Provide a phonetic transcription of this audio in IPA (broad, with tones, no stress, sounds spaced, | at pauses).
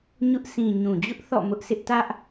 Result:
ɲ ʊ˦ ʔ sʰ ĩ˨ ɲ ũ˨ d͡ʑ ʊ˦ ʔ θ ɔ̰˦˨ m ʊ˦ ʔ sʰ ɪ˦ ʔ t ä˦ ʔ